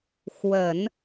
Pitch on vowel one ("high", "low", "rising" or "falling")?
low